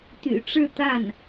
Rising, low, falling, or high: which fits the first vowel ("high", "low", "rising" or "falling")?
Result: low